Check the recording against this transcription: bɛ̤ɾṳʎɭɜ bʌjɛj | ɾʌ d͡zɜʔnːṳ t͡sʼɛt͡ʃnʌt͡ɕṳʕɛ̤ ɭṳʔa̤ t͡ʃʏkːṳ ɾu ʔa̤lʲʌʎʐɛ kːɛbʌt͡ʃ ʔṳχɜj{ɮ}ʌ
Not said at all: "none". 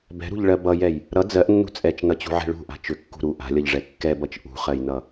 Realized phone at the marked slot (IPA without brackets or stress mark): n